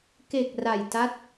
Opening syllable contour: low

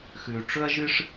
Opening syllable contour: low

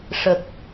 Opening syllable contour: low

